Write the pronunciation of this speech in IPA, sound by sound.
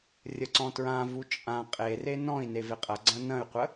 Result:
rʲ ə ǀ ɔ̃ t ɹ ã v u t͡ʃʼ ã qʼ e r e n ɔ̃ i̯ n e v e qʼ ɐ ɡ͡ǀ ɐ̃ n ɐ̃ y̯ qʷ ə

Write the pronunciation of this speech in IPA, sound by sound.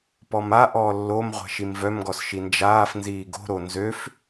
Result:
p ɔ m a ʔ ɔː lː o m ʁʷ ɛ̤ ʃ i m v œ m ɡ ɔ s ʃ i n d͡ʒ aː f n z iː ɡ o̤ ɾ o n z ø f

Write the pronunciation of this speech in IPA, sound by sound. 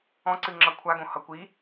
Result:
ɔ̃ ǀ ɨ ŋ͡ǁ ʌ kʷʰ a ɡ õ h ʌ kʷ i

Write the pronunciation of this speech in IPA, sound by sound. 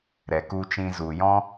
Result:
ɾ ɛ˨ k u˧ t͡ʃ ĩ˧ z u˨ j ɔ̃˦

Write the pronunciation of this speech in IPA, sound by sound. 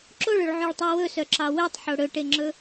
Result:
ǁ o ɭ ɵ ɭ ʕ ø ɭ tˤ ø w ɵ s œ ǁ ɑ w ø tˤ ħ o ɽ ɵ ʈ e ŋ͡ǁ ɵ

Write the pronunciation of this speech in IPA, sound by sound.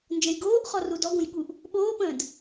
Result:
n d͡ʒ ə̃ j ɡ oː ʔ χ ɔ r u d ɔ ɡ õ j ɠ u ʔ | ɓ oː p ə̃ː d

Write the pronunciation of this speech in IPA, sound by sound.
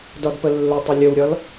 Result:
d ɒ d p ə lː ɵ tˤ ə lʲ ə w ɾʲ ɒ l

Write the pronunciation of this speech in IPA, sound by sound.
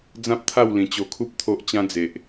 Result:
d͡z ã˦ p̚ t̪ʰ a˥˧ w l ĩ˨˩ t͡ɕ o˧ kʰ u˦ p̚ t̪ʰ o˦ ʔ t͡ɕ ã˦ d͡z e˨ ʔ

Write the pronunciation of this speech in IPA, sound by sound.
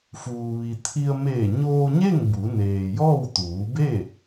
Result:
f uː˩ ʋ i˩ t̪ʰ i˧ ə̯ m eː˧˩ ɲ oː˧ ɲ e˥˨ ŋ b u˩˧ n eː˩ j ɔː˥˨ w t̪ uː˩˧ b e˥˨

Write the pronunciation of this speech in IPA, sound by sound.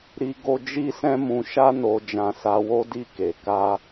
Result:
ɾ i˦ ɡ o˦ d͡ʒ i˦ s ɛ̃˦ m ũ˧ ʃ a˦ n o˧ d͡ʒ ã˧ s a˧ w o˦ d i˦˨ k e˨ k a˧

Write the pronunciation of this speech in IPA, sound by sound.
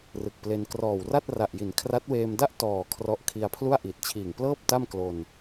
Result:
r ɯ˨˩ k̚ p l e˧ n k r ɔː˨˩ w r a˥˩ t̚ r a˨˩ ʔ j i˩˦ n kʰ r a˦˥ t̚ w eː˧ m d a˥˩ ʔ t ɔː˨˩ kʰ r ɔ˦˥ ʔ kʰ i˧ a̯ pʰ l u˥˩ a̯ ʔ i˨˩ t̚ t͡ɕʰ iː˨˩ ŋ p l ɤː˥˩ p̚ t a˥˩ m k l o˧ n

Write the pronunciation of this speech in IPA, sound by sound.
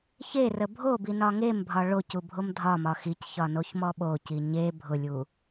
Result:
ç e r ə bʱ o b i n ɒ ŋ e m bʱ ɒ ɭ o c u bʱ o m dʱ ɒ m ɒ x i c ç ɒ n o ç m ɔ ɓ o c i ɲ e bʱ ʊ lʲ u

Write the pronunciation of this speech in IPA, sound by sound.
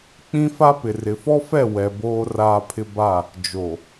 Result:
k͡p ĩ˦ f a˦ p ɪ˨ r ɪ˨ f ɔ˦ f ɛ˦˨ w ɛ˨ b oː˦ r aː˦ pʰ ɪ˦ b a˦˨ | d͡ʒ o˨

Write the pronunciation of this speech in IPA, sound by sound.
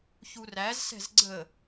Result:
ç u r æ z s ɛ̤ z ɡ͡ǀ ə

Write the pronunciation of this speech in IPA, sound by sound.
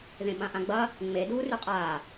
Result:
ð ẽ ɓ ã ʔ ã ɡ͡b ɐ | ŋ͡m e d uː r ʉ qʼ aː

